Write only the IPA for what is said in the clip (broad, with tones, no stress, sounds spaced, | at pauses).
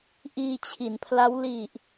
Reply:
ʔ iː˧ t͡ɕʰ i˩˦ n pʰ l a˦˥ w l i˨˩ ʔ